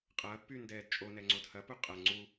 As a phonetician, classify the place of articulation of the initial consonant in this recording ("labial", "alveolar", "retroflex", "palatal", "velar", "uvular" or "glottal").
uvular